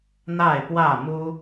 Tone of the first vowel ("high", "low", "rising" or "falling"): falling